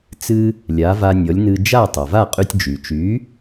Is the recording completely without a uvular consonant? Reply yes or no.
no